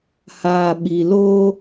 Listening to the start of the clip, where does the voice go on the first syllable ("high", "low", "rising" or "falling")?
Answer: low